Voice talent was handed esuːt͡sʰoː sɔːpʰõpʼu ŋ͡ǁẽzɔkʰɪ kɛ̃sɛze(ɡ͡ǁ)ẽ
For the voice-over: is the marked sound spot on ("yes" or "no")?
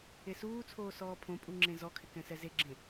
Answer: yes